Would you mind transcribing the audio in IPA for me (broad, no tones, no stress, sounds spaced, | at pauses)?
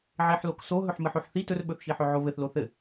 ʕ e ħ l o k s o ɦ ɵ ħ m ɘ ħ o ħ θ i t ɵ r ɓ ɵ θ ʃ i ħ ɵ ʕ o β ɘ θ l o θ ɘ